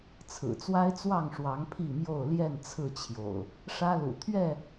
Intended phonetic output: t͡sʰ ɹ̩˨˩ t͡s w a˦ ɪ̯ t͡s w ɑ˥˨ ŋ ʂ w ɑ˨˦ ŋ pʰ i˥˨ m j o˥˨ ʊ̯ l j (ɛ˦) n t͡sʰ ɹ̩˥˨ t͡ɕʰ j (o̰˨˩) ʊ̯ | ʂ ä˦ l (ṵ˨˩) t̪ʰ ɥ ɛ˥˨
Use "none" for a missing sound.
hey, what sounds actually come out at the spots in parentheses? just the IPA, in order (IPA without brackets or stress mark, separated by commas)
ɛ˥˨, o̰˨˩, ṵ˨˩